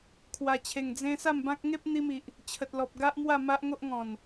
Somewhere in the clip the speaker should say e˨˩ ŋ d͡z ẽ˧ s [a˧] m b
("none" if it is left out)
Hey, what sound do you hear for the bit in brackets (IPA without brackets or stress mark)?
a˥˧